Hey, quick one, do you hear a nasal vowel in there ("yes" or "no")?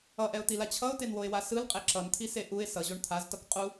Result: no